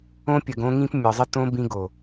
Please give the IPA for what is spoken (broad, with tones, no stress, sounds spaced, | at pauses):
õ˧ pʲ ə˨ ɡ õ˧ ŋ ĩ˧ p mʲ ɒ˨ zˤ ə˧ t õ˧ b ĩ˧ ɡ o˨